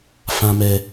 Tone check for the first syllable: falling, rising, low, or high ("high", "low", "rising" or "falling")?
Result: low